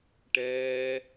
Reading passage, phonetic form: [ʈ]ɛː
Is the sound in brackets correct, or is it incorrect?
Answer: correct